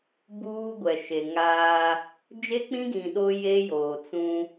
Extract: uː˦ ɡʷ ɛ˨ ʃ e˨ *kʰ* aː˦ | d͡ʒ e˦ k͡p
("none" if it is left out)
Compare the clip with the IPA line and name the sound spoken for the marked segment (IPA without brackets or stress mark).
ŋ